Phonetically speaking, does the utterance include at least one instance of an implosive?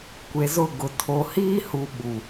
yes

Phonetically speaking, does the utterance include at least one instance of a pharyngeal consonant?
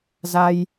no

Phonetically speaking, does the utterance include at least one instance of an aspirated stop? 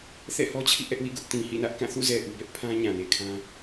yes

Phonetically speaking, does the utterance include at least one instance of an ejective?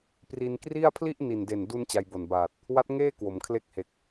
no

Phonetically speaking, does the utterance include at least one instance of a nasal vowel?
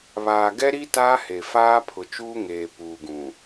yes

